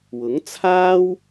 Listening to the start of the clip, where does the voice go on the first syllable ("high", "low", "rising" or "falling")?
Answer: rising